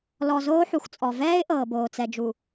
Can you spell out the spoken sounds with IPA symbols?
l ɔ˨ z oː˦ ħ u˨ x t͡sʼ ɔ˨ v ɛː˦ ɪ̯ ʔ ɤː˨ b oː˨ t͡s ɛ˨ d͡ʒ u˨

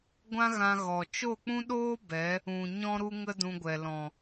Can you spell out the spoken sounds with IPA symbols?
ɡʷ ã˦ ɣ ã˧ ɣ ɔ˨ t͡ʃ o˦˨ k͡p ũ˦ ɗ oː˦ b ɛ˨˦ | ũ˨ ɲ ɔ̃˦ ɾ u˦ ŋ ə˦ d ũ˧ ɡʷ ɛ˨ l ɔ̃˨

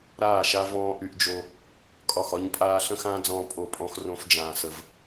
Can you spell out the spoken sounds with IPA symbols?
ɾ aː˦˨ ʃ a˦ v ɔ̃ː˦ ʔ y˦ ʔ d͡ʒ o˦ | kʼ ɒ˦˨ x ɒ˦ ɲ pʼ aː˦ ɬ ə̃˦ x ãː˦ d͡z ɔ̃ː˦ pʼ o˦˨ pʼ ɔ̃˦ x r õ˦ f d͡ʒ ãː˦ s ə˦ v

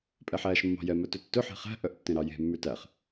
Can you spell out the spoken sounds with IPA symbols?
pʼ ɛ ħ æː ʃ mː ɑ̤ j ɛ m œ t ø tː ɵ ħ e̤ χ æ̤ ʔ œ ʔ tː ẽ ɾ ɑ j e̤ mː ʉ t æ χ

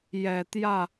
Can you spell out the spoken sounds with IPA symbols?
j ɛ˨˩ t̪ j ä˥˩

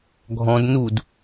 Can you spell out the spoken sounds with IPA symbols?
ɡʱ ɔ̃ d n u d

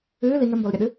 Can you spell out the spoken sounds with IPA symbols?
ɨː l i ŋ ɘ m b ɔ l ɾʲ ɐ ɗ ɨ

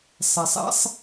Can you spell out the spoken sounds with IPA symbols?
sˤ ɛ˩ sˤ ɛ̰˥ sˤ

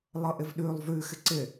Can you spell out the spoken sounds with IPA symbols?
lˠ ɤ ʔ ɪ v ɗ ʉ lˠ v ʉ x ɪ ǀ ɪ

